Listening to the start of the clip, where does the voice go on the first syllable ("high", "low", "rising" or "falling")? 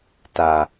low